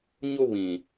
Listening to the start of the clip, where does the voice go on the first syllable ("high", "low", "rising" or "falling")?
high